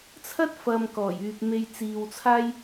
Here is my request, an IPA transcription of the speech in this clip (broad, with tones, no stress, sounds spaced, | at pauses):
t͡sʰ ɐ˥ t̚ f ɐ˨ m k ɔː˨˩ j yː˨ p̚ m e˧ j t͡s iː˨ w t͡sʰ aː˥ j